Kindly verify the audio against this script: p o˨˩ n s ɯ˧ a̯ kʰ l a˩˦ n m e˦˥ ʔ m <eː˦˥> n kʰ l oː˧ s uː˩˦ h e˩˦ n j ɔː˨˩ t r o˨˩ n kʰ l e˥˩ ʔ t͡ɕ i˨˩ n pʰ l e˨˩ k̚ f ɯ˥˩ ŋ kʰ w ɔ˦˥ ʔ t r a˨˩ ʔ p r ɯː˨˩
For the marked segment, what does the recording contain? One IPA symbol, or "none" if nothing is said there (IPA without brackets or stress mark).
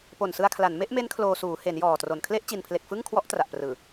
e˦˥